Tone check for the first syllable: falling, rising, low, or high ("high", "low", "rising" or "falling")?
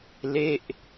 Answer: falling